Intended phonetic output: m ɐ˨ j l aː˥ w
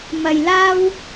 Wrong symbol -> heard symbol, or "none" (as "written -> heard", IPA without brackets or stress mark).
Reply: none